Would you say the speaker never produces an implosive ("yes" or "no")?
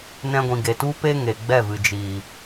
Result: yes